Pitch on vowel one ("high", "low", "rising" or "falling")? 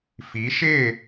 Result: rising